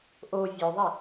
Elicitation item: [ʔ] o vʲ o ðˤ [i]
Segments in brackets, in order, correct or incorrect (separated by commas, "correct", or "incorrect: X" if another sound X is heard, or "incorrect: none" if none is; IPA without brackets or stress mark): correct, correct